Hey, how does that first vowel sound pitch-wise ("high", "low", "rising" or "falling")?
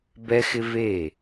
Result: high